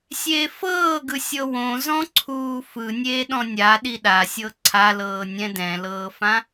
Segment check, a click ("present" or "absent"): present